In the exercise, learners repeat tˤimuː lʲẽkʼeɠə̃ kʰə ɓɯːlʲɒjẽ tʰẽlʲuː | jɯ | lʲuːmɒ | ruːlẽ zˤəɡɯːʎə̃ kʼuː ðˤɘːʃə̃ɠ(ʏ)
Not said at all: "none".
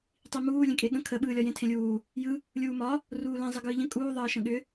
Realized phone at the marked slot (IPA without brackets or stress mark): ʏ